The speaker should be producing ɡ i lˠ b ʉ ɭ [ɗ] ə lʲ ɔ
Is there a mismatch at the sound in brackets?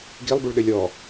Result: no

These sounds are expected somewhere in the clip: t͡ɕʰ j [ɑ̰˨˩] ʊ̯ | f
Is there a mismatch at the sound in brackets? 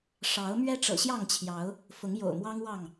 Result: yes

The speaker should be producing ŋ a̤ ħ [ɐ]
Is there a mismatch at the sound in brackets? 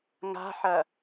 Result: no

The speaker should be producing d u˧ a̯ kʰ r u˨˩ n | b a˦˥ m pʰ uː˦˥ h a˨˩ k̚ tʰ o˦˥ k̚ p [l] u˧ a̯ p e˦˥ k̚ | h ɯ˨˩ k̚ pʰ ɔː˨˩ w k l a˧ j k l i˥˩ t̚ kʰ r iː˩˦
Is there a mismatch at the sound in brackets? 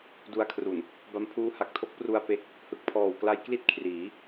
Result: yes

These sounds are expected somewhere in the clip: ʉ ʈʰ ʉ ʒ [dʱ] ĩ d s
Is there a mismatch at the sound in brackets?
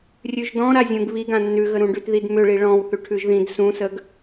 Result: yes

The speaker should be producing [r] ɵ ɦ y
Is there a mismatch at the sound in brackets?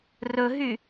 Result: no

